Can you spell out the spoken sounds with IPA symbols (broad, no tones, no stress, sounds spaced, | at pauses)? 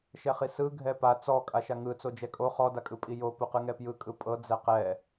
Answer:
ʃ ɛ χ i s ɯ ɡʱ ɛ p a t͡s ɔ kʼ a ʃ a ŋ ɯ t͡s o d͡ʒ ɛ kʼ o χ ɔ d a kʼ ɯ pʼ i j o p u q ɯ ŋ ɛ p j ɯ kʼ ɯ pʼ ɤ d͡z ɛ q ɛ